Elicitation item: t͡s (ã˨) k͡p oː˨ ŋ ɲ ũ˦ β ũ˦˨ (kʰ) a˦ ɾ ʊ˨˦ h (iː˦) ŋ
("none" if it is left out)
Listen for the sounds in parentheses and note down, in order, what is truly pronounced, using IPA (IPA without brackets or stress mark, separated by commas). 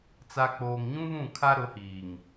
a˨, kʰ, iː˨